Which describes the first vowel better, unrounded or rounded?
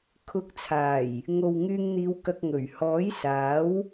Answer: rounded